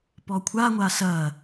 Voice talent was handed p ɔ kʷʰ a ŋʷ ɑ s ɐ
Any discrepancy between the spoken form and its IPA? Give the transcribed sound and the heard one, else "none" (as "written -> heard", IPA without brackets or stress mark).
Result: ɑ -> a